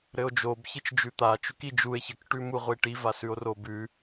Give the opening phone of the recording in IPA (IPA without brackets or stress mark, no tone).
ɾ